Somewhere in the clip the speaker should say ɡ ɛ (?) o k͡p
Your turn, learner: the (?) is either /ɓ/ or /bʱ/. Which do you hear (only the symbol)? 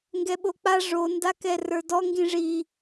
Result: ɓ